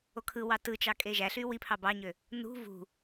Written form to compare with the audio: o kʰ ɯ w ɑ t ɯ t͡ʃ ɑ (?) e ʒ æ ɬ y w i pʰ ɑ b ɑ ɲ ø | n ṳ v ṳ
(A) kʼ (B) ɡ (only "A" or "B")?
A